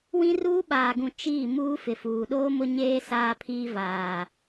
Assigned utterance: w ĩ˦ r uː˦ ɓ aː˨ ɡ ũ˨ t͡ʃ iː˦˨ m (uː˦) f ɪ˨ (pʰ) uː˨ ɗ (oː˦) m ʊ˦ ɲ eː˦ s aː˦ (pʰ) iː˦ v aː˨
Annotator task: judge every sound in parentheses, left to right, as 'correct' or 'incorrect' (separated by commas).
correct, incorrect, correct, correct